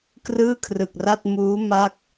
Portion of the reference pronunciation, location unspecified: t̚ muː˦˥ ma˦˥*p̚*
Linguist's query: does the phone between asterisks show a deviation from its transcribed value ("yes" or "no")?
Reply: yes